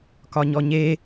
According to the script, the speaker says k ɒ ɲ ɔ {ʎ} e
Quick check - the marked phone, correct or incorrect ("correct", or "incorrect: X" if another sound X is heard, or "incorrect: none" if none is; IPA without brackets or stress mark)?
incorrect: ɲ